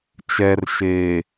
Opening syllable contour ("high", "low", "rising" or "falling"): low